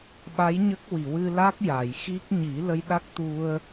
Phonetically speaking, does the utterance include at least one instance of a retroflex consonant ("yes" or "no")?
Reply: no